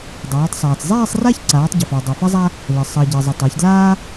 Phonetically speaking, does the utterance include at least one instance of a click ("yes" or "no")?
yes